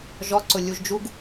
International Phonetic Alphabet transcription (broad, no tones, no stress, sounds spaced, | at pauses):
ʒ ɔ ǀ ʊ lʲ u ʒ d͡ʒ u ɡ